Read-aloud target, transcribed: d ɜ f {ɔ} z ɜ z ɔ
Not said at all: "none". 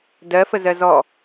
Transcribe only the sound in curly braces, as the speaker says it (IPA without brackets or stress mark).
ə